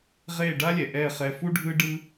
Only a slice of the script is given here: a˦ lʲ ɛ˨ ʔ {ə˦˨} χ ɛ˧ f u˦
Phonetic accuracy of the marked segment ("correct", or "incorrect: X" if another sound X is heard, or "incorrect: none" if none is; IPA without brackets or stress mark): incorrect: ɛ˦˨